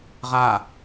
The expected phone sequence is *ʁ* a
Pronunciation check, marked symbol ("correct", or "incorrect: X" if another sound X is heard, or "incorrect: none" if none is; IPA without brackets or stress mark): correct